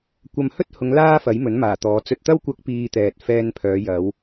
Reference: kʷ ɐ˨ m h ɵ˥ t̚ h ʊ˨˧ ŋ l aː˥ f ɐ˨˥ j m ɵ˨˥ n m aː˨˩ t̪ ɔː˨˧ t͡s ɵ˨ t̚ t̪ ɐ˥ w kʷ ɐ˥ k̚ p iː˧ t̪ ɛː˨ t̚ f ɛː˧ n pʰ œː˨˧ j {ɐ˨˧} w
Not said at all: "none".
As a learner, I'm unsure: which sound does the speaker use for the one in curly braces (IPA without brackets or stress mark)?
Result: ɐ˨˧